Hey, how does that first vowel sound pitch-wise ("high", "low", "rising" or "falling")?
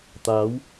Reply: rising